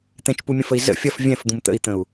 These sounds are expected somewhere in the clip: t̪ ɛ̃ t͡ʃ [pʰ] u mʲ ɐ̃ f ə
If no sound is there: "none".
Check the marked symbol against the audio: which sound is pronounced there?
p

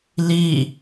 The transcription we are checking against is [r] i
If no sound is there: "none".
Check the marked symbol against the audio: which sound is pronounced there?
l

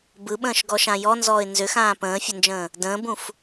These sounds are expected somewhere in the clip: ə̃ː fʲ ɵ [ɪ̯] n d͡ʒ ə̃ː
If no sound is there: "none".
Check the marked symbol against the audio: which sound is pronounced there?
none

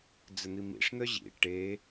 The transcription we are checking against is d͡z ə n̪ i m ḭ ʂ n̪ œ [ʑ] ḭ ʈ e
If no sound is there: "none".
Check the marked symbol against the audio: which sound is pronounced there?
ʑ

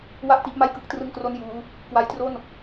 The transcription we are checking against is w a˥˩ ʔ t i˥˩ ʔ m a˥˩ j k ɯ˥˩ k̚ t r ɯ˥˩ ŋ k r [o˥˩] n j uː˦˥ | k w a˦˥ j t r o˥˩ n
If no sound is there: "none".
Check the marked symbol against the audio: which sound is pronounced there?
o˥˩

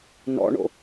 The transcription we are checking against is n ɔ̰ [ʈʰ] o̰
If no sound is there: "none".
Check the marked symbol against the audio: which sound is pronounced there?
ɳ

